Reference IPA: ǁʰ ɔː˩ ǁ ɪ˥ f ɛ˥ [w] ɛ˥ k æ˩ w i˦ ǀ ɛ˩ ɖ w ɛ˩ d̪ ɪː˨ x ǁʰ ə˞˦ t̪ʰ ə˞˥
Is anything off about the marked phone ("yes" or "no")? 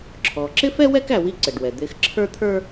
no